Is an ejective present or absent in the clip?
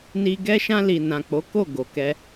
absent